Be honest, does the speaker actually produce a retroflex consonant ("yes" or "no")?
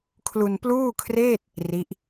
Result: no